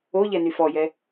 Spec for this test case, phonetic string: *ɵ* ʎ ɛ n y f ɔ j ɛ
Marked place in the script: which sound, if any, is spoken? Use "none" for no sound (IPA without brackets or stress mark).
o